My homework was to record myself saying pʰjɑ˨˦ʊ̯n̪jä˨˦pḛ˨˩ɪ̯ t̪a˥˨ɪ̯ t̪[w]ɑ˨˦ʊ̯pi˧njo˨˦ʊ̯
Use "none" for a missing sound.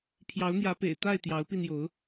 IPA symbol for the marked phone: j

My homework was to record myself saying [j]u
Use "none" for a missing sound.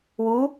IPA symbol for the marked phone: w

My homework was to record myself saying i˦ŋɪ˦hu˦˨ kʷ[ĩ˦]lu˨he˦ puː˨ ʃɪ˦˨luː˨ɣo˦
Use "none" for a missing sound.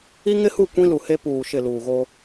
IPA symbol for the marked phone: ĩ˦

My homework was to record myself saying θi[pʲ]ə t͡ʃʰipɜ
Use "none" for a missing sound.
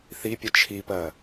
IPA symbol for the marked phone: pʲ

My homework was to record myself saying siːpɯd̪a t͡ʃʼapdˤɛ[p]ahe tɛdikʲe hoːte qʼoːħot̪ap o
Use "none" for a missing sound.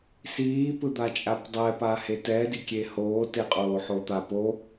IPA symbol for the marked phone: p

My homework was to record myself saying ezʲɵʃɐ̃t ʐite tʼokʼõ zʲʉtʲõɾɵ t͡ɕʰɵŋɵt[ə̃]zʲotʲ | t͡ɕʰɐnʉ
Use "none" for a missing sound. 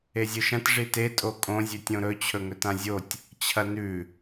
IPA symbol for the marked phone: ã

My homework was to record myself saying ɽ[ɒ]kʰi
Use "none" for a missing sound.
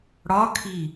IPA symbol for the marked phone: ɒ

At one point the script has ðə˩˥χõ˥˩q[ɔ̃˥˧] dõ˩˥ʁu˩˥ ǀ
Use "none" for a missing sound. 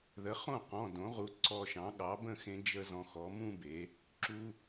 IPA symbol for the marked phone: ɔ̃˩˧˩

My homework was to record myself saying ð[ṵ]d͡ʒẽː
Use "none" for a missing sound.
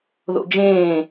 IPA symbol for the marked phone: o̰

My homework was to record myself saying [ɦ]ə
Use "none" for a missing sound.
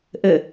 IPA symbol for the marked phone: ʔ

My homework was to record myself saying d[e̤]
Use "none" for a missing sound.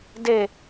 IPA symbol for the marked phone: e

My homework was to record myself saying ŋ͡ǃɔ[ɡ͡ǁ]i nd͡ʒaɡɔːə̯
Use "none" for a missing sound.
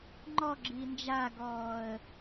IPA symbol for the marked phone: ɡ͡ǁ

